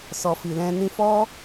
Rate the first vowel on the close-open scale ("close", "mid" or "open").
mid